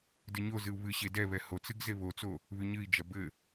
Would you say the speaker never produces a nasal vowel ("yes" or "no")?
yes